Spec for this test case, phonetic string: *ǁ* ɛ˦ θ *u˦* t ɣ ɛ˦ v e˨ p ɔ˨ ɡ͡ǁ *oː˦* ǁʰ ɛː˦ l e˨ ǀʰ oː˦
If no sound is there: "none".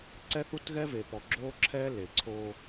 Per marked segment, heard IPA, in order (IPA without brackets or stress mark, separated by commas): ǀ, u˦, oː˦